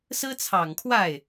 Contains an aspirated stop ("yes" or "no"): yes